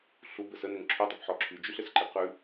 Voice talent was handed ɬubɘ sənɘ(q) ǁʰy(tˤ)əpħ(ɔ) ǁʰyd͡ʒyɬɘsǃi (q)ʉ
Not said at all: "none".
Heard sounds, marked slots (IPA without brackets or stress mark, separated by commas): ŋ, tˤ, ɔ, q